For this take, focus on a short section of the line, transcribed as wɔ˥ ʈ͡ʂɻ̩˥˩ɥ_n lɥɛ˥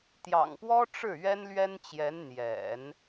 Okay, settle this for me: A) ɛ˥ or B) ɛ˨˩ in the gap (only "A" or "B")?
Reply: A